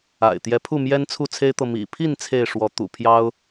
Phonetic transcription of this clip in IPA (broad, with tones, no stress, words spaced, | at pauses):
a̰˨˩ɪ̯t̪jɛ˨˦pʰu˥˨ mjɛ˦nt͡sʰu˥˨t͡sʰe˦ɪ̯t̪ɤ˨ mḭ˨˩pʰi˥˨n t͡sʰe˥˨ɪ̯ ʂwɔ˨˦ t̪ṵ˨˩pʰjɑ˦ʊ̯